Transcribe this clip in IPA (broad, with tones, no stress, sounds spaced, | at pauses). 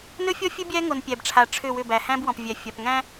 n ɵ˦ fʲ ɔ˦ fʲ ɵ˦ bʲ æ˦ ŋ o˨ n pʲ æ˨ b ʈ͡ʂʰ a˨ ʈ͡ʂʰ ʏ˦˨ w ʏ˦˨ b æ˨ h æ̃˦ b w ɔ̃˨ p vʲ æ˨ fʲ a˨ p ŋ æ̃˦